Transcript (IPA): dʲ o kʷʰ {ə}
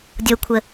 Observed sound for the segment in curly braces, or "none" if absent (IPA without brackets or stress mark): ə